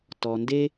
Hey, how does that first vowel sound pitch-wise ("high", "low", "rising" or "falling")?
low